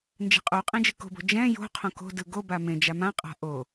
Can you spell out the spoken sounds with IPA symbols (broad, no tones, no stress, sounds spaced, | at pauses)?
n d͡ʒ ɛ̤ qʼ o qʼ ẽ d͡ʒ ɯ k o̤ b o̤ d͡ʒ ɛ̃ j o̤ qʰ õ k o̤ d ɯ ɡ o b a m ẽ d͡ʒ a m ã qʼ a̤ ʔ o